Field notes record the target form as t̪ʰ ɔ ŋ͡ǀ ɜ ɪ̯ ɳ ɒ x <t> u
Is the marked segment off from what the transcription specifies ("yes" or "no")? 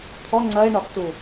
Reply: no